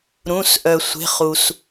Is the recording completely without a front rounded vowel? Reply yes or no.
no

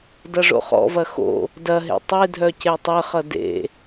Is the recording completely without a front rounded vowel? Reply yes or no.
no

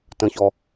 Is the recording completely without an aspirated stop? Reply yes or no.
yes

